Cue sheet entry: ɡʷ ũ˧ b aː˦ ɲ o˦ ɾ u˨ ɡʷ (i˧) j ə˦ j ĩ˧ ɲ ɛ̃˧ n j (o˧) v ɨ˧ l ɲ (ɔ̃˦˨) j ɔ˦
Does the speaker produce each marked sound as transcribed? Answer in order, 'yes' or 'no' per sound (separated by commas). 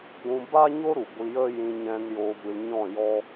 yes, yes, yes